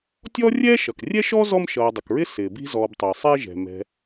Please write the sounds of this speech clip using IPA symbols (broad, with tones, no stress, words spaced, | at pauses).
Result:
tʲɔː˥rʲɛː˥ʃʌ˩k rʲɛ˥ʃɔ˥zɔ˦m ʃʌː˨dˤʊ˩kɹɪ˥ sɪː˩bi̤˦zɔː˨btˤɪː˩ sˤɛ˦ʒɛ̤˩mɛ̤˨